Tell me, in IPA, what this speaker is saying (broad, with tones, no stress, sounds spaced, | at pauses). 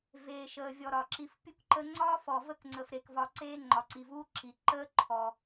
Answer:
v eː˨ ʃ əː˨ vʲ ɔ˨ ɾ ɒ˩ ǁ i˨ f pʲ u˦ k ǃ ə˦ ŋ͡ǀ ɒː˥ f ɔ˨ v ə˥ k ŋ͡ǀ ə˨ f ɾ e˩ k v ɒ˨ ǀ eː˦ ŋ͡ǃ ɒ˩ ǀ i˩ v uː˦ ǁ i˩ ǃ əː˥ ǃʰ ɔ˩